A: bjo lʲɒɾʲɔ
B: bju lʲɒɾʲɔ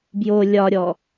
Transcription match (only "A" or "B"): A